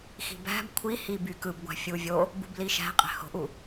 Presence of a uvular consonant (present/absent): present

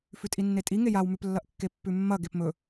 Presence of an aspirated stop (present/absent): absent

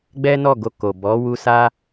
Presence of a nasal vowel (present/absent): absent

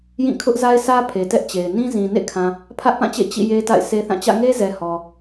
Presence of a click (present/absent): absent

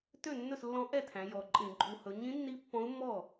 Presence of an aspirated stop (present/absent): present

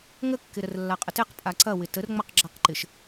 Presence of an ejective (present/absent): present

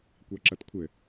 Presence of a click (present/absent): present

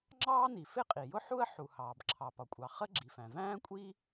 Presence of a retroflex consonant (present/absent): absent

